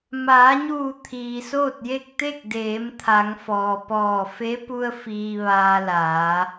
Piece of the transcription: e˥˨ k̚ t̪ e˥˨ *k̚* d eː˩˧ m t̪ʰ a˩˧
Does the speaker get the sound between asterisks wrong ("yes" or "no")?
no